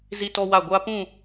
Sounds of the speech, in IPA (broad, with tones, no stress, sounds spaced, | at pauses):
z i˦ t ɔ˦ w a˦˨ ɡʷ a˦ p ũ˦˨